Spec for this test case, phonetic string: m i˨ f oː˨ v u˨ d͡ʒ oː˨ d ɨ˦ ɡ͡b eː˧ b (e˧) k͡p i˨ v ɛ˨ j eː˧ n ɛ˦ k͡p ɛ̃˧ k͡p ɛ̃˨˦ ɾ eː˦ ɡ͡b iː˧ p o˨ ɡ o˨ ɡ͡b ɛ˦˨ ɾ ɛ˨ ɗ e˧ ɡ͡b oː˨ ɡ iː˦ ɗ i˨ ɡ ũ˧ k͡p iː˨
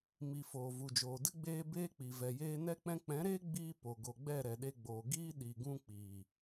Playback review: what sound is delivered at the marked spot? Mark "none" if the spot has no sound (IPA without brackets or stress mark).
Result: eː˧